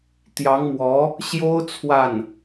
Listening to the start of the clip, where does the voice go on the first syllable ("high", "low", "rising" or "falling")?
rising